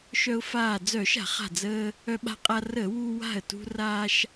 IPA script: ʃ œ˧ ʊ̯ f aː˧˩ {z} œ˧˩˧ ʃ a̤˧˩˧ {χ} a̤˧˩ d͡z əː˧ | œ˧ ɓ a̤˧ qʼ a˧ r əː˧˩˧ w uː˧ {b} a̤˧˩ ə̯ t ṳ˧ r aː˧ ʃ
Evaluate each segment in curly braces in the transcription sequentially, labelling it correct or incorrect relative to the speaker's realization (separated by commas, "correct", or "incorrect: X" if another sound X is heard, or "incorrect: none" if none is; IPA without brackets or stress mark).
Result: incorrect: d͡z, correct, incorrect: w